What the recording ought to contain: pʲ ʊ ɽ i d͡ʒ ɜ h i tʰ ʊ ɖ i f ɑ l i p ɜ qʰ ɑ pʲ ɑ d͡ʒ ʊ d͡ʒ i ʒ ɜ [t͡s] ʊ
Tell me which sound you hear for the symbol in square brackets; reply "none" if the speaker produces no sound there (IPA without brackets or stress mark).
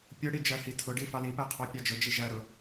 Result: ɾ